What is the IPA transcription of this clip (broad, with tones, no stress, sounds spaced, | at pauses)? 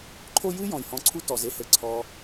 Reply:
ǃʰ o˦ j ɨ˥ j ɔ̃˩ j h ɔ̃˨ ǀʰ u˥ t ɔ˩ z e˥ h ɘ˩ ǀʰ ɔ˨